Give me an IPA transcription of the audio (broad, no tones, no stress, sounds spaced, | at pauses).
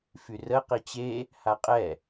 f y r ə q i t͡ɕ e | h a qʼ ɛ